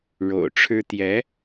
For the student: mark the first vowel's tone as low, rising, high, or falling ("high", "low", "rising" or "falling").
low